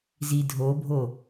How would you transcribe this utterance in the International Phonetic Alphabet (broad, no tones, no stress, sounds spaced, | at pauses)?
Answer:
z i dʱ o bʱ o